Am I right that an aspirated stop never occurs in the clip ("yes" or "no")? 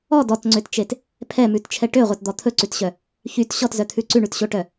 no